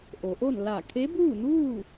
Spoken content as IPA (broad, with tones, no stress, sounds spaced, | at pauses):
ʔ o˩˧ ʔ o˥˨ n l a˧˩ kʰ e˧˥ b uː˥˨ n uː˥˨